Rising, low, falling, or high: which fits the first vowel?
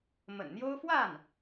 low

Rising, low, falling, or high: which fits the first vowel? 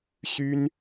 high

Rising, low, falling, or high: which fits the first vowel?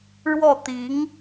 falling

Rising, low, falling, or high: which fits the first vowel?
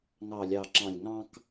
low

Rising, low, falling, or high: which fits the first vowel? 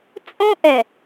high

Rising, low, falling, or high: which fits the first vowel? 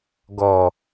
low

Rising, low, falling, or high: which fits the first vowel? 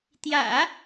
low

